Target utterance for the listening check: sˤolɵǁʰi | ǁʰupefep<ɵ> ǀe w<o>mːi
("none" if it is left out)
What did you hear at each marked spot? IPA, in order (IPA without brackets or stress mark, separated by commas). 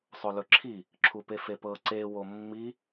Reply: ɤ, o